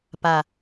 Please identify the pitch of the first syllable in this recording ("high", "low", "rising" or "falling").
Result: low